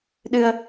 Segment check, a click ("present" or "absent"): absent